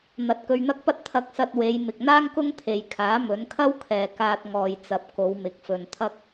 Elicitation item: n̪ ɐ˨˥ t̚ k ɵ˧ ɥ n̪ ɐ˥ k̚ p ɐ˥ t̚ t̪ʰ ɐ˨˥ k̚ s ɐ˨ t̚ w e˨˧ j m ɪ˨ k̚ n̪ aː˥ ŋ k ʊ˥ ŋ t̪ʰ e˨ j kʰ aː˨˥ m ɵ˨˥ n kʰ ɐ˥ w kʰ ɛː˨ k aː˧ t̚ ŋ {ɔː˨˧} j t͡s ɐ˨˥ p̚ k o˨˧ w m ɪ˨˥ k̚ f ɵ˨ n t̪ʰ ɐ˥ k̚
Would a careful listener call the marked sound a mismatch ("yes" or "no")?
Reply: yes